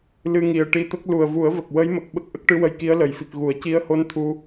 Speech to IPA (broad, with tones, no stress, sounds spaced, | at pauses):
l ɨ˧ ŋ i˨˩ ə̯ ʈ i˧ t̪ ə˦˥ k̚ l u˨˩ ə̯ v u˨˩˦ ə̯ v ə˨˩ k̚ w ə˧˥ j m ə˨˩ k̚ ɓ ə˦˥ k̚ ʔ ə˦˥ k̚ ʈ ɨ˧˥ w ə˧ j k i˧˥ ə̯ l ə˨˩˨ j f i˨˩ k̚ ɣ u˨˩˨ ə̯ c i˧˥ ə̯ h o˧˥ n t̪ʰ u˧